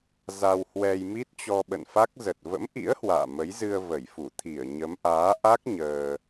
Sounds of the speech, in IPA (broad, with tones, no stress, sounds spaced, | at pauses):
z a˧ w h w ɛ˧ j m i˦˥ t̚ t͡ɕ ɔ˧ ɓ ə̰˧˨ n f a˦˥ k̚ z ə˨˩ t̚ v ə̰˧˥ m ʔ ḭ˧˥ ə̯ h w a̰ː˧˨ m ə˨˦ j z ɨ˧ ə̯ v ə˧˩ j f u˧˩ t̪ʰ i˧˩ ə̯ ɲ ə˨˦ m ʔ aː˨˦ ʔ a˦˥ k̚ ɲ əː˧